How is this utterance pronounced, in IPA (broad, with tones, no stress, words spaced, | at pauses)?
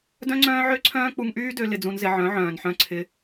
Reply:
dœ̃˦ŋ͡ǀœ̃ː˦ʕø˦ǀʰœ̃ː˦ k͡pu˧ŋʔyː˦dø˧ lɪ˧d͡zũ˧nzɪ˧ ʕœ̃˨˦ʕœ̃ː˨nħœ̃˧ ǀʰɪ˧